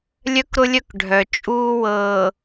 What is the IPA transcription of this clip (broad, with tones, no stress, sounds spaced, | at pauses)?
lʲ œ˦ k ɾ ʊ˦ lʲ œ˦ k ɖʱ œ˨ t͡ʃʼ uː˦ w ɤː˨